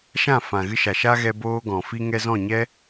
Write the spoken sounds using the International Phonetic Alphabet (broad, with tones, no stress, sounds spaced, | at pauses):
ʃ ã˦˨ f ã˨ ɣ ɨ˦ ʃ a˨ ʃ a˦ ɣ ɛ˧ b oː˦ ɡ ɔ̃˨ f i˧ ŋ ɛ˧ z ɔ̃˦˨ ɲ ɛ˦